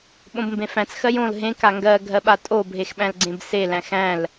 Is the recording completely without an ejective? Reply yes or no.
no